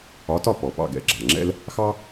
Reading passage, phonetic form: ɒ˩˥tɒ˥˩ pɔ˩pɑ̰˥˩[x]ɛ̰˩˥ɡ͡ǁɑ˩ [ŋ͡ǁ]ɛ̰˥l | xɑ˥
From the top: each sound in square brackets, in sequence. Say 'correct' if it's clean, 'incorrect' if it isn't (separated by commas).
incorrect, correct